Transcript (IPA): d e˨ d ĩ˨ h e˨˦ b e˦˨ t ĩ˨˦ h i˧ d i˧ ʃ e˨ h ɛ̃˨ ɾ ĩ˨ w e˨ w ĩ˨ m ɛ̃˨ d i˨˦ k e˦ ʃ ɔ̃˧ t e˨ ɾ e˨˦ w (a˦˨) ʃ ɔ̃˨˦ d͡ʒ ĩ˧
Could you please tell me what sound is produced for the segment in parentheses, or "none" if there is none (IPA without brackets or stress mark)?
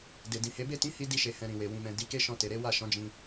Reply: a˦˨